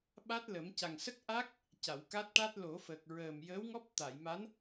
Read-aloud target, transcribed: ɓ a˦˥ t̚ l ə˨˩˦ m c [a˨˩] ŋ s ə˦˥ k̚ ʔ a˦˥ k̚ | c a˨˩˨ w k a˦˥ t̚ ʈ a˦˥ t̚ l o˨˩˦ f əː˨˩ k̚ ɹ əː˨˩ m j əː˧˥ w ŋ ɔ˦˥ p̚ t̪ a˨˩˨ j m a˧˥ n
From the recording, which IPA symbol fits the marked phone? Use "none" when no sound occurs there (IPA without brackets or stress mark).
a˨˩